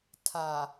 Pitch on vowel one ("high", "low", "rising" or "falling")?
low